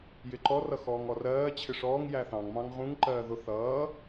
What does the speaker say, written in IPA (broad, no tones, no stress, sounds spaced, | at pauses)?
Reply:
j ɪ ǃ ɔ r ʌ x ɔː ŋ ɔ r ɜː t͡ɕʰ ɪ ʂ ɔː ŋ j æ θ ɑ̃ ŋ m ɑ̃ ŋ ʁ ũ ŋ ǃ ɜː ð ʊ θ ʌː